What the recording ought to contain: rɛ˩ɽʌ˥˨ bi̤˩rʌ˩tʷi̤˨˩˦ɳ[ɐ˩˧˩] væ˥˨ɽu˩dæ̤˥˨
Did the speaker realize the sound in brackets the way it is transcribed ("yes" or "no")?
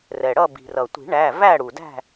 no